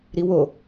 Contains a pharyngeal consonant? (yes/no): no